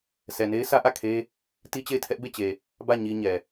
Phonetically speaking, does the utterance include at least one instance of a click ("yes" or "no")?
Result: no